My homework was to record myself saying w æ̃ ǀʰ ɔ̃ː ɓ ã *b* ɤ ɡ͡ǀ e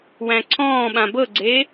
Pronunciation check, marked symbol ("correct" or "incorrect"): correct